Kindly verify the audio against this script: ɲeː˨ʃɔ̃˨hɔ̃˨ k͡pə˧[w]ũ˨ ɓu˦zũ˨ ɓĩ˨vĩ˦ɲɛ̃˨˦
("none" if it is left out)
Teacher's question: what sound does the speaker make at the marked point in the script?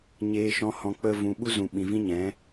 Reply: v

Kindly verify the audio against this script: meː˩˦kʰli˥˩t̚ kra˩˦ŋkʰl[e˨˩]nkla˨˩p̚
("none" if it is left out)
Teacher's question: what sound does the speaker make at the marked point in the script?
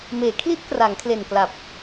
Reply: e˨˩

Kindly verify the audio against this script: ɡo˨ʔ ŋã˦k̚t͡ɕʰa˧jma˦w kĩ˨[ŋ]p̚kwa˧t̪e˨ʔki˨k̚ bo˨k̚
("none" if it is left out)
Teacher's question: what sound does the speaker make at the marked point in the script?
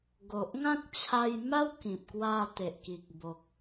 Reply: none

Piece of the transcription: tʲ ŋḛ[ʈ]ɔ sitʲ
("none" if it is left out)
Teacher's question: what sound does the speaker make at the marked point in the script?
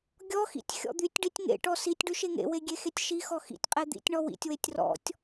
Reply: ʈ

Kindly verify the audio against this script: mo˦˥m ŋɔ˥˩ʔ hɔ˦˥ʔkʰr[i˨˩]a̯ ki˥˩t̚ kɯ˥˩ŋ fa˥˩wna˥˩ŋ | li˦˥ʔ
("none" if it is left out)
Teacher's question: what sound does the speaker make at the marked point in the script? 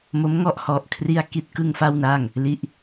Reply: i˥˩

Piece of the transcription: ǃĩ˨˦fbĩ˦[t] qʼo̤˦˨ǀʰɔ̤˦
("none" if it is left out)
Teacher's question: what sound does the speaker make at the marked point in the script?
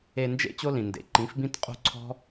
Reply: t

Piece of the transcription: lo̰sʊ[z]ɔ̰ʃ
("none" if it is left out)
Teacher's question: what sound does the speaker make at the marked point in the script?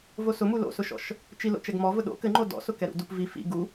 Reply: ʃ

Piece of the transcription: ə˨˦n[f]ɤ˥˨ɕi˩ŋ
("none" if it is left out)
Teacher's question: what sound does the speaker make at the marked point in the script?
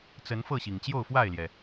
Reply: f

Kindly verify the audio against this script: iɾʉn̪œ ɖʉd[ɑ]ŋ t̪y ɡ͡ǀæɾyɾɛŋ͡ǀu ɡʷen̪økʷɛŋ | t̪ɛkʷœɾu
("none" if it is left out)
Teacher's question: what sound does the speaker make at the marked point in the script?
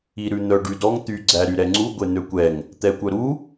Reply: ɔ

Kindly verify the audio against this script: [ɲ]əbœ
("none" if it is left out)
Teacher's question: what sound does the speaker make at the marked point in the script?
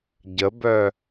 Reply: ɟ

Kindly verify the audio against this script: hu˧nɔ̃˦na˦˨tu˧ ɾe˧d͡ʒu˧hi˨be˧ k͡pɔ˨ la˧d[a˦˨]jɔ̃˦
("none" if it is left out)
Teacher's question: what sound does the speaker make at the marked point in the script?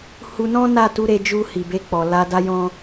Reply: a˦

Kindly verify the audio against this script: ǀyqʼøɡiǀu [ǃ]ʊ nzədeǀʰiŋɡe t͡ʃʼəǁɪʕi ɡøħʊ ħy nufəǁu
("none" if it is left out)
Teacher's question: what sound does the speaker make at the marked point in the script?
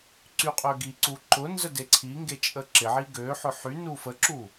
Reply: ǃ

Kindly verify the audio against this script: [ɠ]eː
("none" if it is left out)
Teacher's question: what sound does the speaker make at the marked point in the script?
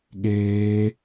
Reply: ɠ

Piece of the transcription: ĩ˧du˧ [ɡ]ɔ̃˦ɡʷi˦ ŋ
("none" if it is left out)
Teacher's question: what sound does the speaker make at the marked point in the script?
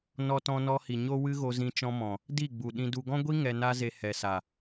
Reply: ɡ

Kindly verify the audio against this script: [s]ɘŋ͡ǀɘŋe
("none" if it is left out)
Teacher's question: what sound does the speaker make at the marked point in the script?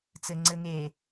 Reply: t͡s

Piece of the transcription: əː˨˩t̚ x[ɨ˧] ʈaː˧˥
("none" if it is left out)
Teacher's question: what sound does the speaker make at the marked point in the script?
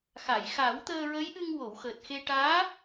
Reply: e˧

